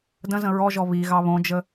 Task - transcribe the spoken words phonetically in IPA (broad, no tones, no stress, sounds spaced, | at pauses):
d ə̃ z ə̃ ɹ ɔ ʒ ɔ β i ɣ ɑ β õ d͡ʒ ə